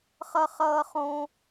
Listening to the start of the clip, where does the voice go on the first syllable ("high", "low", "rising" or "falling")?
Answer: high